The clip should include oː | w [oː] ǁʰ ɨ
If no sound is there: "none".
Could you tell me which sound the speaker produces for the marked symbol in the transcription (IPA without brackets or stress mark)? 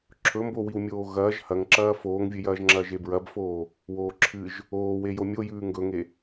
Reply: oː